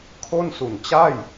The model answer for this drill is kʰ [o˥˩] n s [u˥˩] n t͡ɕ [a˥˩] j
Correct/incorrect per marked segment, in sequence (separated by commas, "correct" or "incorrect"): correct, incorrect, correct